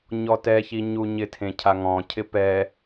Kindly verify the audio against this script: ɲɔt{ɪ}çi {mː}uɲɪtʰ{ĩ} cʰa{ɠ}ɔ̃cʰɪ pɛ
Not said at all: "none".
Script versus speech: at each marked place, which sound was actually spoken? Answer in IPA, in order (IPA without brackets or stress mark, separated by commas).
ɛ, ɲ, ẽ, ŋ